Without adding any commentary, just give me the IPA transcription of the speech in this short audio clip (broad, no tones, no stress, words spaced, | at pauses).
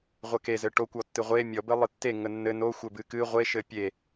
ʁʷəke zɘʈokʷ ɔtːɨʁʷe mʲɔ bɘlˠɨtːe ŋənːɘ no xʷɘbɨkɨ ʁʷe ʃɘpʲe